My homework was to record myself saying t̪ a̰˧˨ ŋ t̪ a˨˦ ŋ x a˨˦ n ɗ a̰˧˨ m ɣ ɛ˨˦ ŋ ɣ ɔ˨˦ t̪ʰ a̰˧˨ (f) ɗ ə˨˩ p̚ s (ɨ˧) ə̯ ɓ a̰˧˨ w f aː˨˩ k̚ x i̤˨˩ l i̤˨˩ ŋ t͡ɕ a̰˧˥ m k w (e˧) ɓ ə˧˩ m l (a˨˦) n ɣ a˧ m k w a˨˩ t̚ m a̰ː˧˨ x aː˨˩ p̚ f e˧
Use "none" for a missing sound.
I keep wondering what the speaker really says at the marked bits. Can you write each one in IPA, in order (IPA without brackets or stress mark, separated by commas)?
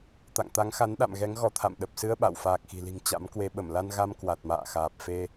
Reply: m, ɨ˧, e˧, a˧